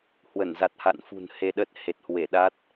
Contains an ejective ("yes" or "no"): no